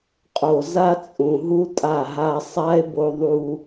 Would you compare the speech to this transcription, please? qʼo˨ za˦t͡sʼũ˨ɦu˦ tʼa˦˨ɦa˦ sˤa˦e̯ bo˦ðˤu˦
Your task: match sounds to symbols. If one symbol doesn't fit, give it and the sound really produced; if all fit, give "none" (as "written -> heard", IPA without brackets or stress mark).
none